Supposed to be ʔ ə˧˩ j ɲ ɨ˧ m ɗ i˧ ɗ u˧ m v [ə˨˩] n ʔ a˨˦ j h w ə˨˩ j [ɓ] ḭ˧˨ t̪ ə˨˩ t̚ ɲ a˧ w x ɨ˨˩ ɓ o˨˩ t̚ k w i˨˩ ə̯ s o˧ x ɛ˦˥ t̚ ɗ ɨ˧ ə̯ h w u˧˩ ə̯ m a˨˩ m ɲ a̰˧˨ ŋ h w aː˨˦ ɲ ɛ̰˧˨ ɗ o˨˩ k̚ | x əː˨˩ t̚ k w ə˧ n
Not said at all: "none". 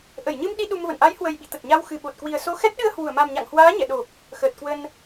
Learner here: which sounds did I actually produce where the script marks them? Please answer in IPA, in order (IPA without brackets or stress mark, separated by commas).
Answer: ə̰˧˨, ɓ